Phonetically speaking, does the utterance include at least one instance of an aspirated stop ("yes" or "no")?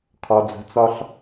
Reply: yes